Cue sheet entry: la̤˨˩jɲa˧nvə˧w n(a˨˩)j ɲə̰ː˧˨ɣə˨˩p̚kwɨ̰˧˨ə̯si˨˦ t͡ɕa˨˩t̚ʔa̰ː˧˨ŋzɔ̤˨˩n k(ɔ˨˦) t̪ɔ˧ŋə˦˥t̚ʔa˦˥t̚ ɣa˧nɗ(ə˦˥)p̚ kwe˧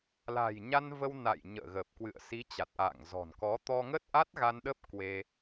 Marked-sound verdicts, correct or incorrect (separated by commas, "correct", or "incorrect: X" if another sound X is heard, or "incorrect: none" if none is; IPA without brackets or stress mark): incorrect: a̰˧˨, correct, correct